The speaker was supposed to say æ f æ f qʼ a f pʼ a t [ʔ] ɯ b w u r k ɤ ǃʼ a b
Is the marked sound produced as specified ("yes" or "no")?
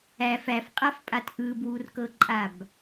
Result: yes